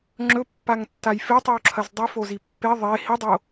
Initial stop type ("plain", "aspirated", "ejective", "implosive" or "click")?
click